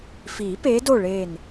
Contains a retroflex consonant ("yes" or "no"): yes